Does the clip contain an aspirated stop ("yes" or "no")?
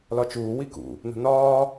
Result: no